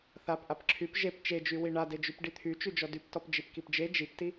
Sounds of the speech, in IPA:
θapʔap ǁʰyp ʒep t͡ʃed͡ʒy wiɳa ded͡ʒypɖit̪ʰy t͡ʃyd͡ʒɔdyptɔp d͡ʒipkipd͡ʒe d͡ʒipti

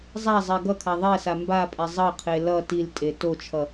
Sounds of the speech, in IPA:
zˤazˤɛ ɡʌkʰa ðˤɛsa mbapʼɛ zˤʌqʰe lʌ tiltʼe tot͡ʃʰʌ

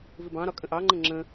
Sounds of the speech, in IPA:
vɪbɑ̃ɾɒ kʼə̃ʔɑŋ͡ǃə̃ ŋ͡ǁə̃

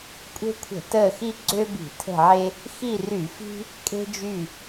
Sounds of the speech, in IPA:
kʷʼe̤˦kʷʰə̤˧˩˧ təː˦˨xi˦ ɡ͡ǀø˦ bi̤˧˩˧tʰə̤˦˨ʕe˦ | xi˦˨ry˧˩˧fi̤˦ | kʼe̤˦d͡ʒy˦˨

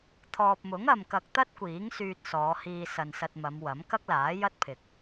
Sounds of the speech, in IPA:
t̪ʰɔː˨p̚mʊ˨˥ŋɐ˨m kɐ˧k̚t̪ɐ˥t̚kʷiː˨˥ŋ syː˧t̚sɔː˨˧hiː˧ sɐ˨nsɐ˧t̚ mɐ˨˧mwɐ˨˥m kɐ˥k̚laː˨˥jɐ˥t̚pʰɪ˨k̚

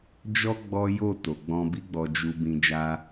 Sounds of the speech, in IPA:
d͡ʒɔ˦ ɡ͡bɔ˦ jo˦˨ to˨ɡ͡bɔ̃˧bi˦ ɡ͡bɔ˧d͡ʒu˧bĩ˧ d͡ʒa˦

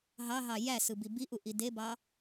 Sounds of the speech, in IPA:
ɦɑɦɑ jæsɯbi biʔuʔi debɑ

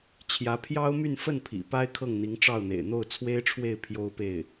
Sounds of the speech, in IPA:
t͡ɕʰjä˧˥pʰjɑ˥ʊ̯my˥˧n fə˥˩n pʰḭ˨˩pa˥ɪ̯ kʰɤ˥˩ŋn̪i˧˥ŋʈ͡ʂɑ˥˩ʊ̯n̪ḛ˨˩ɪ̯ n̪o˥˩ʊ̯t͡sʰwe˥ɪ̯ʈ͡ʂʰwe˥˩ɪ̯ pʰjo˥ʊ̯pe˥˩ɪ̯

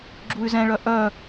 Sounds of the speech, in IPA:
ɡ͡ǁuy̯zɛ̃ɭœ ʔœ

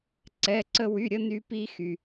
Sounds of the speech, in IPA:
ǀɛ˩˧˩ǀə˧ wy˩˧˩ɾʲə˥˧ny˧pi˧ xy˩

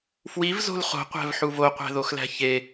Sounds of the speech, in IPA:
fwivzo̤l χo̤qʷæ̤vħuv oqʷæ̤ðoxlæ̤ çe

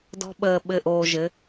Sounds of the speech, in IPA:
dɔ̤˦ɓəː˧ ɓɘ˦˨ʔoː˧ʒɘ˨˦

